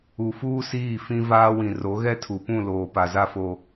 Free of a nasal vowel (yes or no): no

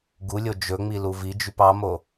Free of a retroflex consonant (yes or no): yes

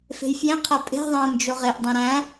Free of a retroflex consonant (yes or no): yes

